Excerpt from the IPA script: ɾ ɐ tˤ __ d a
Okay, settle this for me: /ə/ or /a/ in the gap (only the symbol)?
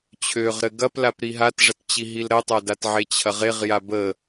a